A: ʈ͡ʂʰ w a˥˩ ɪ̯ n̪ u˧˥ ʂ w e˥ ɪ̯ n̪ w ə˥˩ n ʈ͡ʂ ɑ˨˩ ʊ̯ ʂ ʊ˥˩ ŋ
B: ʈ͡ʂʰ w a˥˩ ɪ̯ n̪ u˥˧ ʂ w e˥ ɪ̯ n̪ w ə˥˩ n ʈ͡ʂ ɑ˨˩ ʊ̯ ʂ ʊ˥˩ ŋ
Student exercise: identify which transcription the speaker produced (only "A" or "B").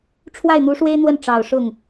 A